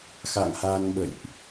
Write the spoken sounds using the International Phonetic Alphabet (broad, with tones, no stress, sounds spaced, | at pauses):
x a̰˧˨ ŋ h a˧ n ɓ ə̰˧˨ j ʔ